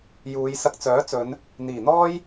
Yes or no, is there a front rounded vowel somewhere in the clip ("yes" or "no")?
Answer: yes